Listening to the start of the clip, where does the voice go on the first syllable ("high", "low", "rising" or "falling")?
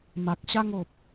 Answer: low